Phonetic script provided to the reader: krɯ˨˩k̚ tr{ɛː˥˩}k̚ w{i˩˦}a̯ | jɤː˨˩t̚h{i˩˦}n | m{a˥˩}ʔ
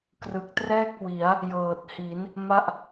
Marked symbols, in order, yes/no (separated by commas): yes, yes, yes, yes